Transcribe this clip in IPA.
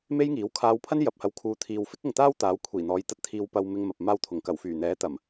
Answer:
m e˥ j ŋ iː˨˥ w kʰ aː˨˧ w pʰ ɐ˥ n j ɐ˨ p̚ h ɐ˨˧ w kʰ uː˨˧ t̪ʰ iː˨ w f ɪ˥ k̚ ʊ˨ ŋ t̪ aː˥ w t̪ aː˨˥ w kʷʰ iː˨˩ n̪ ɔː˨˧ j t̪ ɐ˧ t̚ t̪ʰ iː˧ w p ɐ˧ w m ɪ˧ ŋ m ɐ˨ p̚ m aː˧ w t̪ʰ ʊ˨˩ ŋ k ɐ˨˩ w f yː˨˩ n̪ ɛː˨˥ t̪ ɐ˨˩ m

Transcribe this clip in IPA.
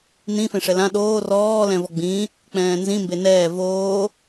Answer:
n ĩ f ẽ ʂ ɛ l ã ɗ oː r ɔː l ɛ̃ v ɔ ɡ͡b ĩ | k͡p ɛ̃ː n z ĩ m b e n ɛː v oː

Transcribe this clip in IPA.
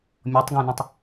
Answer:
mʲ ɔ tˤ ɡ æ̃ n ə̃ tˤ

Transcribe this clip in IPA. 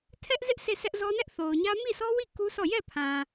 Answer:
tʰ ɛ˦ ʔ z ɪ˦ ʔ s e˦˨ sʰ ɛ˦ ʔ z ɔ˦ n ɛ˦ ʔ θ o˨ ʊ̯ ɲ ä˦ m i˦˨ s ɔ˦ w i˦˨ k u˦ s ɔ˦˨ j ɛ˦˨ pʰ ã˨

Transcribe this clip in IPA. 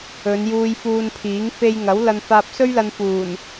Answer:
ɵ˨˧ n j uː˧ j f uː˧ n pʰ iː˨˥ ŋ f e˧ j ŋ ɐ˨˥ w l ɐ˧ n f aː˧ p̚ s ɵ˥ ɥ l ɐ˧ n f uː˨˩ n

